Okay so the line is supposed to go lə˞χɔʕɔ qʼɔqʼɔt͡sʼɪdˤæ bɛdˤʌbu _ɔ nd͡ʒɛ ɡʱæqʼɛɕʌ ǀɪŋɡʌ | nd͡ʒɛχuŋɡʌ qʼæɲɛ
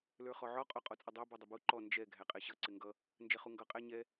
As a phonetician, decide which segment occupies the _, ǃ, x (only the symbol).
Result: ǃ